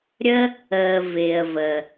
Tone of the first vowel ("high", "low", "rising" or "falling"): high